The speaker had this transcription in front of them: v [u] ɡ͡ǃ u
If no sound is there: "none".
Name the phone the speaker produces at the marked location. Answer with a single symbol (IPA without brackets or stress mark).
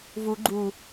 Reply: u